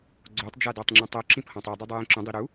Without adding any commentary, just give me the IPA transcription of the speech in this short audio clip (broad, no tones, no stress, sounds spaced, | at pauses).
ɡ͡ǀ o tˤ d͡ʒ a d ɔ tˤ ŋ͡ǁ ũ tˤ o ǁ ĩ p h ɔ̃ tˤ i dˤ u dˤ u j ĩ ǁ ũ dˤ i ɾ u